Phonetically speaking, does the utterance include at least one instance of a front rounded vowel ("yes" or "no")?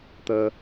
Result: no